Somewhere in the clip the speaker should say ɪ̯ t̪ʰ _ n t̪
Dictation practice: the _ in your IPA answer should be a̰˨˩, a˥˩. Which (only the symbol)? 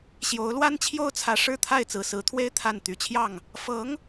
a˥˩